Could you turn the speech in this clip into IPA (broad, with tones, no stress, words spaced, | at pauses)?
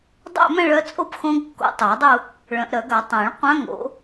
dˤæ̰˥˧mæ̃˥˧ɭœ˧˥t͡sʼo˥˧p xõ˧˥ɡkːo̰˨˩˦tˤæ˨˩˦dˤu˥˧ | ɭœ̃˨˩˦ʔɾœ˨˩˦ɡa˨˩˦ tˤæ̃˨˩˦ɭ qʷã˧˥ŋo̰˨˩˦